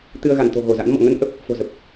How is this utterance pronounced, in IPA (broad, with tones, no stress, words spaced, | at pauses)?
t̪ɨ˧ə̯ɣa˧˩nt̪o̤˨˩ ɣo˧˩za̰˧˥nmɔ̰˧˨ ŋə˧nʔə˦˥p̚ | fo̤˨˩zə˨˩p̚